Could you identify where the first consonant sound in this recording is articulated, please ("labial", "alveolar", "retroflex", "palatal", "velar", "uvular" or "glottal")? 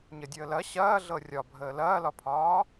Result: palatal